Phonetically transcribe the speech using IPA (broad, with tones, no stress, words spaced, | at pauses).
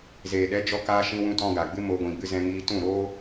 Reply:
zeː˨ɗɛ˨˦d͡ʒɔ˧kaː˧ ʃĩ˧wũ˧tɔ̃˧ ɡa˨ɡ͡bɨ˦mo˧ ɡʷĩ˨ɡ͡bɨ˧zɛ̃˧ŋiː˧ tũ˦˨ɾo˦